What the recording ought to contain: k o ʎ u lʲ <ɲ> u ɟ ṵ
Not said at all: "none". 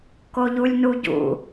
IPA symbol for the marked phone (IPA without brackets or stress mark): n